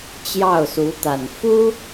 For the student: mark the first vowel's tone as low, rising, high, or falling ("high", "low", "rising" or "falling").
falling